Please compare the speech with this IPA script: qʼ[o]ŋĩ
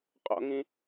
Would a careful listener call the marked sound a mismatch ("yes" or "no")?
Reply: yes